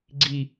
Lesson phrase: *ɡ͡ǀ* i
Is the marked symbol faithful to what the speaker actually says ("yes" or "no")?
yes